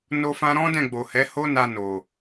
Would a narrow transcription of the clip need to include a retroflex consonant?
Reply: no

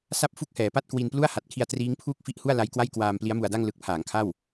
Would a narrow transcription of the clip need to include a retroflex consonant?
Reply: no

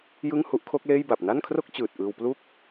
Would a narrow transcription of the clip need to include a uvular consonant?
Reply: no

